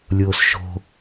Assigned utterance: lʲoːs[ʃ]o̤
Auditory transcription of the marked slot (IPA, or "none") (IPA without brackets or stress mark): ʃ